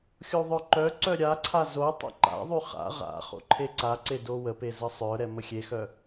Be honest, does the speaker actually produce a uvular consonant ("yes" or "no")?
yes